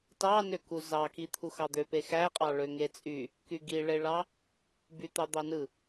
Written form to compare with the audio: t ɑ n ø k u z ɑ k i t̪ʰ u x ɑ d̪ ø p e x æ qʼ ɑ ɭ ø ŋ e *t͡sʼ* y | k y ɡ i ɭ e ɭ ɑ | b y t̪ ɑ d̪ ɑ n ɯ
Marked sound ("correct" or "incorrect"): correct